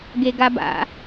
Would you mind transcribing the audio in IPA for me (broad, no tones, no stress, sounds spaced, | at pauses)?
ɡ e ɡ a b a̰